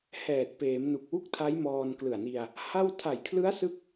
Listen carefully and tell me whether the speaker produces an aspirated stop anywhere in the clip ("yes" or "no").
yes